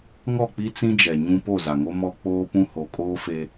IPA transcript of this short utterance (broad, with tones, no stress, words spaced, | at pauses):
ŋɔ˦˨k͡pi˦ t͡sĩ˦d͡ʒɛ˨ɲũ˦ po˦˨za˨ŋo˦ mɔ˦ k͡poː˦pũ˦ ho˨˦kʼoː˦fe˦